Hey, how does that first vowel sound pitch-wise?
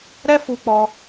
high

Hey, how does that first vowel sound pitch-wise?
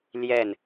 falling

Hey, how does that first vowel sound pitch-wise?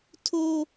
high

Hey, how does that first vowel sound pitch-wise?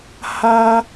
high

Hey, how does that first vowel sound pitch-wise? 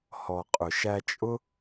low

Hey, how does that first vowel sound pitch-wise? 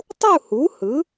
falling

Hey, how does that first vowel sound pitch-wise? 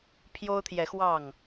high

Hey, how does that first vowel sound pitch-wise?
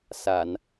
low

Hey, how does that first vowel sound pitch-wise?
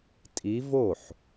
rising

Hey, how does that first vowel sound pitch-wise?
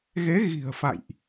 rising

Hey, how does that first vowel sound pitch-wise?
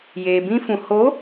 low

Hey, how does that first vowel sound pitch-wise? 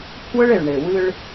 high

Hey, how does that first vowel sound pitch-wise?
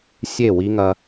falling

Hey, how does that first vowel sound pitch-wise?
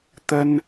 high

